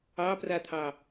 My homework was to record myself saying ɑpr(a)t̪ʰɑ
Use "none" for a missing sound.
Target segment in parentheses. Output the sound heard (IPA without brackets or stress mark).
a